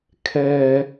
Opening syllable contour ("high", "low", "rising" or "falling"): high